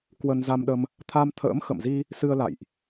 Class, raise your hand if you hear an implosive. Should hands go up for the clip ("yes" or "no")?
yes